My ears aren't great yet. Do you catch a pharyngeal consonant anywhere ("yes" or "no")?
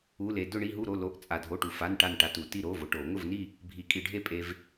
no